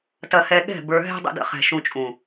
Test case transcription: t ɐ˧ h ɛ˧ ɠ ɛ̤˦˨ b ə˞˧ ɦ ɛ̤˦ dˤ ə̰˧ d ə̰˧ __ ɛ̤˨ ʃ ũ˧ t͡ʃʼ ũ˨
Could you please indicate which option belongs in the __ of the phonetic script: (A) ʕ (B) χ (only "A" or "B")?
B